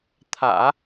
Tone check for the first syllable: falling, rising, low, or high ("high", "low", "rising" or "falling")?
low